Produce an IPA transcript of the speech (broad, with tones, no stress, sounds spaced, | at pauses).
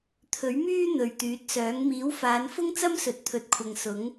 t̪ʰ ɵ˨˥ ɥ m yː˥ n̪ ɵ˨ ɥ t̪ yː˨˥ t̚ s œː˨˥ ŋ m iː˨˥ w f aː˨˧ n f ʊ˥ ŋ t͡s ɐ˥ m s ɵ˨ t̚ t̪ʰ ɵ˨ t̚ kʷʰ ɐ˨ ŋ s ʊ˨˥ ŋ